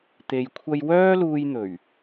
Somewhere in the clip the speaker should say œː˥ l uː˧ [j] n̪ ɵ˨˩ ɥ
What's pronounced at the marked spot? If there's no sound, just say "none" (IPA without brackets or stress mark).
j